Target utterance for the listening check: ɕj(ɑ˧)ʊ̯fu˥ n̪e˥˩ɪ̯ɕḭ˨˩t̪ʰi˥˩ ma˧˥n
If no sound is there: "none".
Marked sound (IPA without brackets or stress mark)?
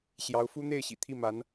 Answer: ɑ˧˥